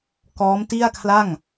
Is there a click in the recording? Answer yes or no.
no